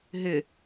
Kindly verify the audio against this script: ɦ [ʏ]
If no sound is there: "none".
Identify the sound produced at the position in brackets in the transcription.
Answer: ʏ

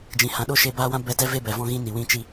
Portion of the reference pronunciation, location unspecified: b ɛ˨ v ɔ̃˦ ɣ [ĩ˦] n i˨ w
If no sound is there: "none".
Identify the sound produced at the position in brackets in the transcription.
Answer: ĩ˦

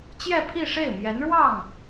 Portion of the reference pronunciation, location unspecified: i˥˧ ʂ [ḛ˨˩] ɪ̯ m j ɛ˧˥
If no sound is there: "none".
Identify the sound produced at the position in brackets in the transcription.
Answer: e˥˩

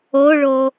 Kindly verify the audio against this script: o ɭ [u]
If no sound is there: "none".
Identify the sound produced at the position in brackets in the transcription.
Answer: o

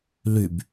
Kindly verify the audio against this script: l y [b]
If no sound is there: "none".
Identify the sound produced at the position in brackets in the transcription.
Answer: b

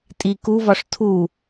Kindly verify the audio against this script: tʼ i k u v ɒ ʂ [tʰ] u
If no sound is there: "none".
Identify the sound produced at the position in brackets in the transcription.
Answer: tʰ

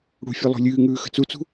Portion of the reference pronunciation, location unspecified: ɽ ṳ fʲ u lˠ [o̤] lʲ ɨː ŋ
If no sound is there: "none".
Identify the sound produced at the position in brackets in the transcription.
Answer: o̤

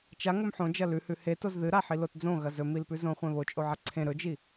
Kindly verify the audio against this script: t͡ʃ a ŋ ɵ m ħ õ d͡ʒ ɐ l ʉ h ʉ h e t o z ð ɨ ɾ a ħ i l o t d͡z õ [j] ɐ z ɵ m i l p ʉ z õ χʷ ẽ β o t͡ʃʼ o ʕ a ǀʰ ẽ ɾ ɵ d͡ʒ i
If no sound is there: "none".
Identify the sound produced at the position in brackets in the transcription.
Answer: ɣ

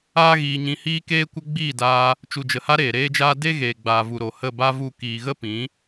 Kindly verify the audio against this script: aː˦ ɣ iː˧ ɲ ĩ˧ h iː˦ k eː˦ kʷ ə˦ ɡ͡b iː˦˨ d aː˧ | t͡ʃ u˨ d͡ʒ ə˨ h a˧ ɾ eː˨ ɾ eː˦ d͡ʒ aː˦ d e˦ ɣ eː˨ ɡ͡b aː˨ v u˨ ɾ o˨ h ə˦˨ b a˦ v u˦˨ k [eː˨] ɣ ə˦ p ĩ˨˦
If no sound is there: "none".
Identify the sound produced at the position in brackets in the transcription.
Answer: iː˨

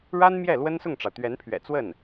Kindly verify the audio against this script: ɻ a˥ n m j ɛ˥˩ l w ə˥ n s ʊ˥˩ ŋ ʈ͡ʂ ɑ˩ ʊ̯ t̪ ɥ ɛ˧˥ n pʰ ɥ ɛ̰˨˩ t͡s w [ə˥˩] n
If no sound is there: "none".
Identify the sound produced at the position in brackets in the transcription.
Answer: ə˥˩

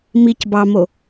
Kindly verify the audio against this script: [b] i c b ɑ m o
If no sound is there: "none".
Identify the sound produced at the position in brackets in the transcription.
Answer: m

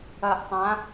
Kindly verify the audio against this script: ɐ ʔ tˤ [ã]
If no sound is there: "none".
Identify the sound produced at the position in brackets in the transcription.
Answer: ã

